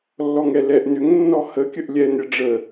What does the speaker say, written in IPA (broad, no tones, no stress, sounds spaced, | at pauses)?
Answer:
lː ɔ ŋ ɛ l ɛ ʔ n ʏ ŋ nː ɔ h ə kʲ ə ʔ lʲ ɛ n ɾʲ ə ɖ͡ʐ ə